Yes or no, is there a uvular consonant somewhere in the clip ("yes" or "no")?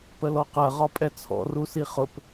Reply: yes